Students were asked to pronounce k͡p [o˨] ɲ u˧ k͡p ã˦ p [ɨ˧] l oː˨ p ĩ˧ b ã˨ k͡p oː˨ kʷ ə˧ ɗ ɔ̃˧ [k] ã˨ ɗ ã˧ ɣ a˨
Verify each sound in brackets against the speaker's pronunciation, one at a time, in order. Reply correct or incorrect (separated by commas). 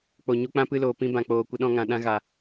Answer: correct, correct, incorrect